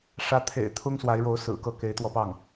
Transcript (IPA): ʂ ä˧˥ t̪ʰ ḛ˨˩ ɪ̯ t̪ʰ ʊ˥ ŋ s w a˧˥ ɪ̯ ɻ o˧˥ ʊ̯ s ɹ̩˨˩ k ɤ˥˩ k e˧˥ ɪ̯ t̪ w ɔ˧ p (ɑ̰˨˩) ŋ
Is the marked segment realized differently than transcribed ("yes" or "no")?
yes